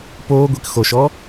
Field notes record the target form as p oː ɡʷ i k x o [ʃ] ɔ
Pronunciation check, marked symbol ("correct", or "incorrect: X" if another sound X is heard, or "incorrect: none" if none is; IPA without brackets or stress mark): correct